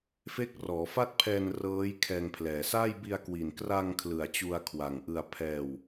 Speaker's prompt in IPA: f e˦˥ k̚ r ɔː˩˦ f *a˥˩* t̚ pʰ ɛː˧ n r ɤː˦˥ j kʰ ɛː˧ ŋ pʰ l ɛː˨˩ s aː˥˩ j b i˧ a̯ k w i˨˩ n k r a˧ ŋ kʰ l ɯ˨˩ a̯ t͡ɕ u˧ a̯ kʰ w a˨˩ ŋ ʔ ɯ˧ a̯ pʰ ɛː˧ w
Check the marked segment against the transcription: correct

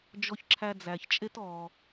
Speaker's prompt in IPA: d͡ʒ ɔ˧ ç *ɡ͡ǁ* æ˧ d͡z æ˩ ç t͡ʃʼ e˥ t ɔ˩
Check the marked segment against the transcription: incorrect: ǁʰ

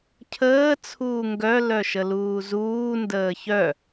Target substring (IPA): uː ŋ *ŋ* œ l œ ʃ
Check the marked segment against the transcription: incorrect: ɡ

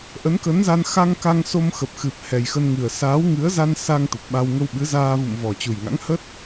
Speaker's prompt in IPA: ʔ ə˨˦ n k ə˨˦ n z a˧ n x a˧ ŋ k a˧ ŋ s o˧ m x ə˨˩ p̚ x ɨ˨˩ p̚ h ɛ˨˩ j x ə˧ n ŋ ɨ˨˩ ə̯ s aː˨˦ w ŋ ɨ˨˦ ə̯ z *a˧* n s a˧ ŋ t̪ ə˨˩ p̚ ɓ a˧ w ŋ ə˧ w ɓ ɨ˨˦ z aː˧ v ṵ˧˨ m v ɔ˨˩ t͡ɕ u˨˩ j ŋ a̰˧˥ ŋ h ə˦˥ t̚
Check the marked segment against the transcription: correct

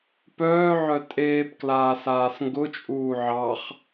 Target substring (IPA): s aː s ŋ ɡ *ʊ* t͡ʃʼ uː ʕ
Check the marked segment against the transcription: correct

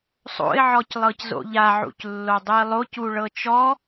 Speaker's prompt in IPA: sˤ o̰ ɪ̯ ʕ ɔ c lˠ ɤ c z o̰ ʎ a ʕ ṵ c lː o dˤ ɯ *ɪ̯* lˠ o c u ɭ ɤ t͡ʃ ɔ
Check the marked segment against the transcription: correct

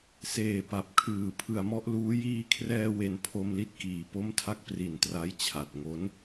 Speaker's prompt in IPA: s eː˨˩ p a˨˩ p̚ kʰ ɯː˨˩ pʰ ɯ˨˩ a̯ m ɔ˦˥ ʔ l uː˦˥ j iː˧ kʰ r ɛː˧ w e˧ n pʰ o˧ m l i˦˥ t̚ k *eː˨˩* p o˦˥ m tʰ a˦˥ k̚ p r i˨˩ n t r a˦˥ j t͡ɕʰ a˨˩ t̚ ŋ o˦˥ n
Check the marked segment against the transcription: incorrect: iː˨˩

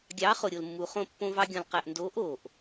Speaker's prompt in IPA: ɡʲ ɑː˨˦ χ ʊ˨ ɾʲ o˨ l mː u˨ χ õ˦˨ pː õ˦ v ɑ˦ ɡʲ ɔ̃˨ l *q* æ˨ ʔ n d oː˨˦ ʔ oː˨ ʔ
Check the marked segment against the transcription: correct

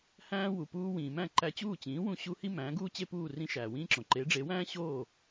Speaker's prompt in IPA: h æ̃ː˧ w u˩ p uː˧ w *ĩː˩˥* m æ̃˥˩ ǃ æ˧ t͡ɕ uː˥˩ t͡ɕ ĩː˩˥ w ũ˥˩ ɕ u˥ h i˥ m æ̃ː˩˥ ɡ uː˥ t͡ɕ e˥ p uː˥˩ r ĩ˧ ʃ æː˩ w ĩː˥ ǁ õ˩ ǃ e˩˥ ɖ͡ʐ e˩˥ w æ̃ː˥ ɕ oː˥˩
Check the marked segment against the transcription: incorrect: ĩː˩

